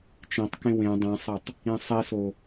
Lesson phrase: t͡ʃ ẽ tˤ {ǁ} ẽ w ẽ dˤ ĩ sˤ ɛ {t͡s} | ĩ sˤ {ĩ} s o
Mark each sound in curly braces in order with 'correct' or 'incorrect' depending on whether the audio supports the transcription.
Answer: incorrect: k, incorrect: tˤ, incorrect: i

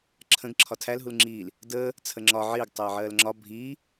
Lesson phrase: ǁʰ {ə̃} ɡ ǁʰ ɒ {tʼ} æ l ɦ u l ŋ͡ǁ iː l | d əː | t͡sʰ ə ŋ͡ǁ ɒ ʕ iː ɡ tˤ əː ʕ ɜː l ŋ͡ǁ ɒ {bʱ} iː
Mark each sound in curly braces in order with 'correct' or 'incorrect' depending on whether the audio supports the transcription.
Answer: correct, incorrect: tʰ, correct

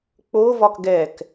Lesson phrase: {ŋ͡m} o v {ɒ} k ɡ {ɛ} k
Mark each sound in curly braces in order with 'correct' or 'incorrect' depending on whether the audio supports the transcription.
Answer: incorrect: k͡p, correct, correct

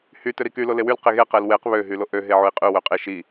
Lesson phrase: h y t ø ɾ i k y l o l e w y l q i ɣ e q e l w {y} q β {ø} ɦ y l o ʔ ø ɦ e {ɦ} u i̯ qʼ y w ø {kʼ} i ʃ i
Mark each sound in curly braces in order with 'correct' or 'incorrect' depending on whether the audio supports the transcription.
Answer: incorrect: e, correct, incorrect: ʕ, incorrect: qʼ

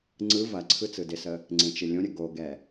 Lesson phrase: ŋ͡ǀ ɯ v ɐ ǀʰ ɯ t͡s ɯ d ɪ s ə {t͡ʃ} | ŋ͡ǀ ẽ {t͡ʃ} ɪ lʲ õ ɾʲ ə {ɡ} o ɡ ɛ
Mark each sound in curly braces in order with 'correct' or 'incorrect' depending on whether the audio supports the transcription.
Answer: incorrect: none, correct, correct

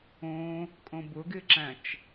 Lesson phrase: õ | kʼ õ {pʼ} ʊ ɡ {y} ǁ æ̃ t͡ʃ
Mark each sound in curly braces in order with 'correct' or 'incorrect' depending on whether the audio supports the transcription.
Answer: incorrect: b, incorrect: ɪ

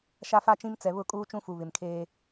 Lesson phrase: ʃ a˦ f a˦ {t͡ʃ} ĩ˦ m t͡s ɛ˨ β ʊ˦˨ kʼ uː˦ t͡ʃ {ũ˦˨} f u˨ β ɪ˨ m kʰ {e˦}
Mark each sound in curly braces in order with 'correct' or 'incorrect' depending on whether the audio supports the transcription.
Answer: correct, incorrect: ũ˦, incorrect: eː˦

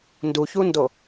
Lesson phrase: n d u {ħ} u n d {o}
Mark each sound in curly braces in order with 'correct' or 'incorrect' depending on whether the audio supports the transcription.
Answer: incorrect: ç, correct

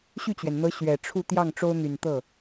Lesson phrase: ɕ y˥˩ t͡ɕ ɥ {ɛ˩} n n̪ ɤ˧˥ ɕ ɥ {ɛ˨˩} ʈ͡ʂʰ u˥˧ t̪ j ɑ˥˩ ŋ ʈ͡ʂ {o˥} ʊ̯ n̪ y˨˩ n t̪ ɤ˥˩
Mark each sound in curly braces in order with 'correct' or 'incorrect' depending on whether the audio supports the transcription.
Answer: correct, correct, correct

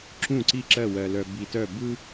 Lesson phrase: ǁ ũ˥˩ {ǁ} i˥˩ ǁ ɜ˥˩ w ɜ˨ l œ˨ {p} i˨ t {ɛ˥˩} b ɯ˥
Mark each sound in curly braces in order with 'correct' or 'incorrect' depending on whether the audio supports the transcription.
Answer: incorrect: ǀ, incorrect: b, incorrect: œ˥˩

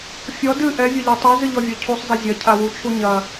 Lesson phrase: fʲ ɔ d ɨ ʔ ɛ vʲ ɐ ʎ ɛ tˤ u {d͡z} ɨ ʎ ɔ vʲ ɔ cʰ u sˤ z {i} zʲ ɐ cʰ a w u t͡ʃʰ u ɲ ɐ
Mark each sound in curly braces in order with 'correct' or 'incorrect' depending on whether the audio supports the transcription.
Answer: incorrect: z, correct

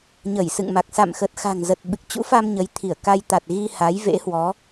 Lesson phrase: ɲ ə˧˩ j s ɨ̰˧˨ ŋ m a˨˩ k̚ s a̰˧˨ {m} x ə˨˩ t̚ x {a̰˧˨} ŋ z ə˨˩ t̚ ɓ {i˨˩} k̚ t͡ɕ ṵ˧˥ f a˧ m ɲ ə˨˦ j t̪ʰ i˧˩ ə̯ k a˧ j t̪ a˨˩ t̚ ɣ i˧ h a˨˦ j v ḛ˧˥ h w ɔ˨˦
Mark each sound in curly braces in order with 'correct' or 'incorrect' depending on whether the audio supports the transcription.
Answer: correct, incorrect: a̤˨˩, incorrect: ɨ˨˩

